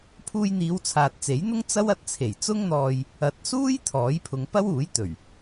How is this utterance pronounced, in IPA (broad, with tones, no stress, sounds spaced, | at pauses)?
pʰ uː˧ j n̪ iː˨˧ w t͡sʰ aː˨ t̚ t͡s e˨˥ j n̪ ʊ˥ ŋ t͡s ɐ˥ w ɐ˧ t̚ t͡sʰ e˨˩ j t͡s ʊ˥ ŋ n̪ ɔː˧ j | ɐ˨˥ t̚ s uː˥ j t̪ʰ ɔː˨˥ j pʰ ʊ˨˧ ŋ p ɐ˥ w uː˨˥ j t̪ ɵ˨˩ ɥ